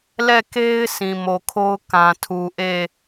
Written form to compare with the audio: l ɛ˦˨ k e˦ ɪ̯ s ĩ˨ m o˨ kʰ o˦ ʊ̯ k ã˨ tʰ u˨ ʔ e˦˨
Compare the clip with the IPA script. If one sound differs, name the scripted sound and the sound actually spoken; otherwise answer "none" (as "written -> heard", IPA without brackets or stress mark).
none